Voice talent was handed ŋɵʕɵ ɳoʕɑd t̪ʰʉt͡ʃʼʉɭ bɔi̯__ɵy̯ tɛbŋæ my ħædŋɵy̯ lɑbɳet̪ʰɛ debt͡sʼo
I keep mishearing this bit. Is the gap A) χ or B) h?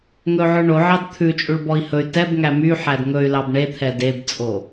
B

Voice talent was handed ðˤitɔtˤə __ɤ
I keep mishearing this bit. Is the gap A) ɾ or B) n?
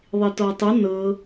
B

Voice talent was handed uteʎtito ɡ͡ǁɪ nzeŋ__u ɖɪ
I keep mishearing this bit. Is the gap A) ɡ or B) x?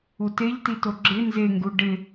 A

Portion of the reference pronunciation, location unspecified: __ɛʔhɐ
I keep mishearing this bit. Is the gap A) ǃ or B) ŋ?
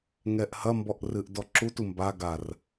B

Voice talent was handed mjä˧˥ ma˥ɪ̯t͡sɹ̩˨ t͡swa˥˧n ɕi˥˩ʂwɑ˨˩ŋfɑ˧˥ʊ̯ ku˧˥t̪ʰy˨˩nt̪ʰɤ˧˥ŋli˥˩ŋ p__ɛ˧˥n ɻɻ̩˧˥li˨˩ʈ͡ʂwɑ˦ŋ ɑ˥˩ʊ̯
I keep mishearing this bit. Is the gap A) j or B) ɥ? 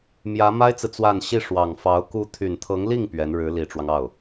B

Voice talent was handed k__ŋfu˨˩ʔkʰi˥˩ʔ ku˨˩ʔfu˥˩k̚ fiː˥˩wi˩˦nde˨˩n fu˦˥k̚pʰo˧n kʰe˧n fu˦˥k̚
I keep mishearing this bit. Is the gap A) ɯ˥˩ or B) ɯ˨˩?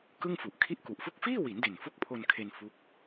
A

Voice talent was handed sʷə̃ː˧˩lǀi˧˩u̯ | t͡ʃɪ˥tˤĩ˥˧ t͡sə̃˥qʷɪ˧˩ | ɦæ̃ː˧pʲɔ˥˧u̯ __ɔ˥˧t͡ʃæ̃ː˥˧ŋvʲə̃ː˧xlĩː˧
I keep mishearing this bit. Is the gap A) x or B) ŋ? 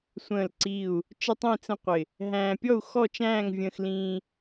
A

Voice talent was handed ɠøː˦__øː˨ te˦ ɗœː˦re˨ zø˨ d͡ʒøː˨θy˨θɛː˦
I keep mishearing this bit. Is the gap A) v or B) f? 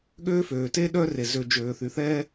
B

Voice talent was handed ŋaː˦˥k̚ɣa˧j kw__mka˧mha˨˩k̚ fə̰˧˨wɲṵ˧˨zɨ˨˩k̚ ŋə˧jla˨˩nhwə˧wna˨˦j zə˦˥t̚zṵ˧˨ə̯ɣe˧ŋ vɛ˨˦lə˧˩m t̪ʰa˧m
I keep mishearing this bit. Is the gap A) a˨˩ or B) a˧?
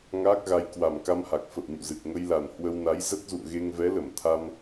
A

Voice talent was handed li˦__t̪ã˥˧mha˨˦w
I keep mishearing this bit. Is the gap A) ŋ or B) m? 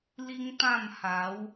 A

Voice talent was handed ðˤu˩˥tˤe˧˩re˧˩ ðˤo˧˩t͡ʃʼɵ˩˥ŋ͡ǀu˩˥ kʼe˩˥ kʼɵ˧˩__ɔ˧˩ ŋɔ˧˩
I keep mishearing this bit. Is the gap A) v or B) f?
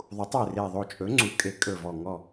A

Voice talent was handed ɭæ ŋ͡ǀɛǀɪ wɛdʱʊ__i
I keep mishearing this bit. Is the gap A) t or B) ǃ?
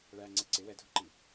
B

